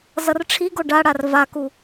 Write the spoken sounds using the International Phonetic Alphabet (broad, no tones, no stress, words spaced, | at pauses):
zʌrʈ͡ʂʰiɡo ɖaɽar vaku